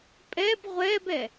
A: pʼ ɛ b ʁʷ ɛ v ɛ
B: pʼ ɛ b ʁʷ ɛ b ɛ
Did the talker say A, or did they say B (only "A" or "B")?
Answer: B